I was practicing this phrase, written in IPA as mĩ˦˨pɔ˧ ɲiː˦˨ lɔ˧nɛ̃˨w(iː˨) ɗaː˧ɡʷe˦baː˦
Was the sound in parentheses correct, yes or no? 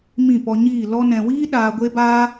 no